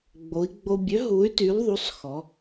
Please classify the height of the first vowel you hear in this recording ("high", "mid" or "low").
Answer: mid